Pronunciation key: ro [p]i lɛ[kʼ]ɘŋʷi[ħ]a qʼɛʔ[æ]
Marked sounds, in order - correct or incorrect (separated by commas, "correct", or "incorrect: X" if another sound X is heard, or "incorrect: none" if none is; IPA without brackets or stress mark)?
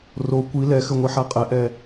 incorrect: kʷ, incorrect: x, correct, incorrect: ɛ